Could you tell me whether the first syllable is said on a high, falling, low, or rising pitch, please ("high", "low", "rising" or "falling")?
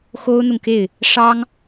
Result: high